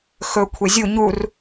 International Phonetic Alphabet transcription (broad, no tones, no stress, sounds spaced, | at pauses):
x ɵ kʷʰ e zʲ u ɲ u r